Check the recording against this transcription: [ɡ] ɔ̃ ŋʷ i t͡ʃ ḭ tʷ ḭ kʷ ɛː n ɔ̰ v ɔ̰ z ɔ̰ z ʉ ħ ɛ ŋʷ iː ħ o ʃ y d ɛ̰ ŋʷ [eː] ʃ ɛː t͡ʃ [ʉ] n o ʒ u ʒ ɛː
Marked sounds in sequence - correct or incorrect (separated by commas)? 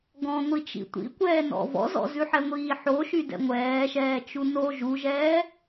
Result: correct, incorrect, incorrect